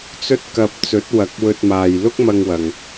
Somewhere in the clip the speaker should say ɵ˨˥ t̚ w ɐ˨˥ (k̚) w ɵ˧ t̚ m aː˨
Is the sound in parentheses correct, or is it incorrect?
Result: correct